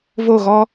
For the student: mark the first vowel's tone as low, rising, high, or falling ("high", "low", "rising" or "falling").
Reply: falling